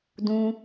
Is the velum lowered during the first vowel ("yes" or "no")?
yes